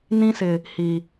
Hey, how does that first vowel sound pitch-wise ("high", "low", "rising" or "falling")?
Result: high